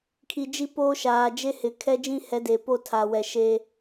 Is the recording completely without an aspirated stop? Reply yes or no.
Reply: no